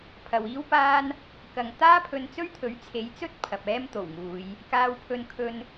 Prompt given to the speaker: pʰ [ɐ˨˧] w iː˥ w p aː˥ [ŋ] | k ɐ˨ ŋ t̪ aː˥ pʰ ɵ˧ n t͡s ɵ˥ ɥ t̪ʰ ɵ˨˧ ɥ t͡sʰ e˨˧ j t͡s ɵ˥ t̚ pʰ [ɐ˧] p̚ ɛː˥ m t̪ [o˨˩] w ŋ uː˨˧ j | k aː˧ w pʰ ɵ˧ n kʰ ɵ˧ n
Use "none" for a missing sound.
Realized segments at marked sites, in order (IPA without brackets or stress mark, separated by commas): ɐ˨, n, ɐ˨, o˨˩